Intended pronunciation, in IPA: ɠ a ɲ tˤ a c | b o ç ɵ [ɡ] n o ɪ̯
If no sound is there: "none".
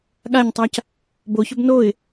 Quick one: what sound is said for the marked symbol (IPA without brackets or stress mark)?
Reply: b